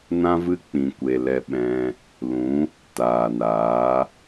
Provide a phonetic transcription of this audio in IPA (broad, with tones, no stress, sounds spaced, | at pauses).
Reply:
n ã˦ v ɨ˦ k͡p ĩ˨ kʷ e˨ l ɛ˧ ɓ ɛ̃˧ | l ũ˨˦ | t aː˨ n aː˨˦